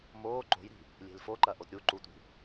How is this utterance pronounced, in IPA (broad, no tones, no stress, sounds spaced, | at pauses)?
m oː ǃ o̤ j ɾ i̤ | lʲ e̤ l f o ǃ ɐ ʔ o t ɾʲ u ǃ u tʷ i̤